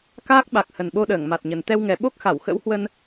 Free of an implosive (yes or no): no